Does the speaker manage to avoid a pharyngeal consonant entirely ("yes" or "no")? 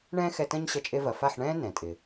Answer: no